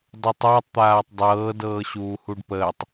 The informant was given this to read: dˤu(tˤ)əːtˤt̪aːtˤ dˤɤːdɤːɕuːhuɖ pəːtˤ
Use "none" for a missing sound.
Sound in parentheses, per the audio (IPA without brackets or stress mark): tˤ